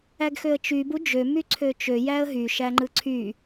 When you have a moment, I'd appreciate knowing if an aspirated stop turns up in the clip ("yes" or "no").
yes